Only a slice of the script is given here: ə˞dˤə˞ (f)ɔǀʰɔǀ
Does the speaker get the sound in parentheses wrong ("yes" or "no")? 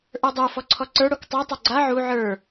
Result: no